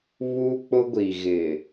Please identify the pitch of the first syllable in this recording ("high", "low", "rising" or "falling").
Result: high